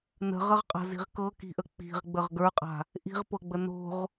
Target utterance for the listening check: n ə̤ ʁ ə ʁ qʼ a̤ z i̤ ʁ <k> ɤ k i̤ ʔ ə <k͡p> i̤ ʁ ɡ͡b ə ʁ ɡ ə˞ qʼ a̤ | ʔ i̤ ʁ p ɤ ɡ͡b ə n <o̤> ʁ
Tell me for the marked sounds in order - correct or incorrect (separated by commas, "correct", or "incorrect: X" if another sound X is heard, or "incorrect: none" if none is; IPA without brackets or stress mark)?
correct, correct, correct